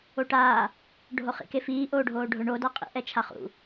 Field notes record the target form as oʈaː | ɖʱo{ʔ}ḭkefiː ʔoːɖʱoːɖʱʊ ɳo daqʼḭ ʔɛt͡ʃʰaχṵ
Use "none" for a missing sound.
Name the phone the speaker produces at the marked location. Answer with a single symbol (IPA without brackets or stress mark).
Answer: χ